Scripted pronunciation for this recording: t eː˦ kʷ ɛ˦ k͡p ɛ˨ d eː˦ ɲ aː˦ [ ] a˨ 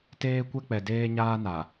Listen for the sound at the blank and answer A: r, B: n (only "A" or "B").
B